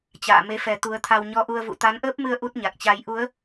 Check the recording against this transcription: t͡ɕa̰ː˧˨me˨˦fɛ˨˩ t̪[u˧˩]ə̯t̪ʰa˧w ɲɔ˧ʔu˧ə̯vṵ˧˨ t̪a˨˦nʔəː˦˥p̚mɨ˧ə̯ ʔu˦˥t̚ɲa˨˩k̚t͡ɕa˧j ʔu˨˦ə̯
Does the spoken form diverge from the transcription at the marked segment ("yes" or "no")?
yes